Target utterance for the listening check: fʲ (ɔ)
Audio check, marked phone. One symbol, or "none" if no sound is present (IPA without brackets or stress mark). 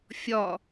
ɔ